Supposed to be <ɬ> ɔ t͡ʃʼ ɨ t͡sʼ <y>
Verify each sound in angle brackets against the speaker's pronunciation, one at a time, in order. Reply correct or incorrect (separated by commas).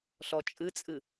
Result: correct, incorrect